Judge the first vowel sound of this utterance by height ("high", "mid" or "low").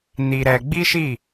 high